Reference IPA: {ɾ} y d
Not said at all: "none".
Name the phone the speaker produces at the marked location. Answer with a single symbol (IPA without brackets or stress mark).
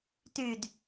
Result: t